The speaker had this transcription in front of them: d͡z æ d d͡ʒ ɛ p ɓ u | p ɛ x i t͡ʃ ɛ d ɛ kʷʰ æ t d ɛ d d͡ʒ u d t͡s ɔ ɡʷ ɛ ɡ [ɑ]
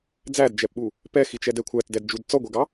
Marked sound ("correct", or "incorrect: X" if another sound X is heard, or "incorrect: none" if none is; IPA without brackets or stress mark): correct